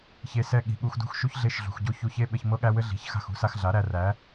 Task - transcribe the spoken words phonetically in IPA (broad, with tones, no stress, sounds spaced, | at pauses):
ç e˧ s ɛ˧ ɠ i̤˨ ɠ u˧ x d ṳ˦ x ʃ u˦ ç ɮ e˦˨ ʃ ɮ ṳ˨ x ɟ o˦ ç u˧ ç e˦ ɓ ɘ˧ ç m ɤ˦ ɠ æ˦ w ɘ˦ ɮ i̤˨˦ ç x a̤˦˨ x ṳ˦ s a˧ x ɮ a˨˦ ɾ æ˧ r æ˨˦